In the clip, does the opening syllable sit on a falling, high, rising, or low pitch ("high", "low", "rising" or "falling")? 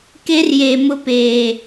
high